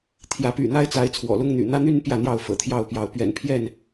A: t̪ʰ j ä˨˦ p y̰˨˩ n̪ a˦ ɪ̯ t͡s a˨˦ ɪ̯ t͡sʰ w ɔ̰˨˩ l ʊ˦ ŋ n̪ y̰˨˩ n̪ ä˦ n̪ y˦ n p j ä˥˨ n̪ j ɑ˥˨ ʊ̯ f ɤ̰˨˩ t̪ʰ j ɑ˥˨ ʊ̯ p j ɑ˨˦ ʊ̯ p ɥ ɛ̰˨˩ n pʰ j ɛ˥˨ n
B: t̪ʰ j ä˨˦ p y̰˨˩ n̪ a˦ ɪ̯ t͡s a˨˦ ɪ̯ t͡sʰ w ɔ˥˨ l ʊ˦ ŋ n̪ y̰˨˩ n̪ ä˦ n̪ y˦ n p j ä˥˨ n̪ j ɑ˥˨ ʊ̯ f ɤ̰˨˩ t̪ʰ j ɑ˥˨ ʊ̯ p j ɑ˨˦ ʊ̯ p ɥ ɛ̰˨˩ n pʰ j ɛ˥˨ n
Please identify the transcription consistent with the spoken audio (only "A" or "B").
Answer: A